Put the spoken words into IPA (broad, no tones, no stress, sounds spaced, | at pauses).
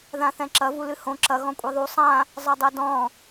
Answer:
ð ã θ ɛ̃ ǁ ɐ v u l ɨ h õ ǁ ɐ ɣ ɔ̃ kʷʼ i ðˤ u sˤ ã | zˤ ɐ dˤ ɛ d ɔ̃